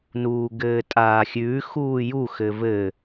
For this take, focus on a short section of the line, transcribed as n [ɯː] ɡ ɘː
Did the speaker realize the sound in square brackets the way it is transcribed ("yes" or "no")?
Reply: no